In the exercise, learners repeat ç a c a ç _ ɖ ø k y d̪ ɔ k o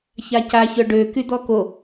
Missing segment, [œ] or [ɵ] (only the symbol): œ